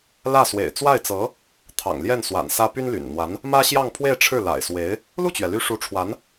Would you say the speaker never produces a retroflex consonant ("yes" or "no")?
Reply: no